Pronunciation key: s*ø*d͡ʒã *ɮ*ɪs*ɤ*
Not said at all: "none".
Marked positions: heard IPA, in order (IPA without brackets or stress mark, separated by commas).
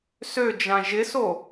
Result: ø, ʒ, o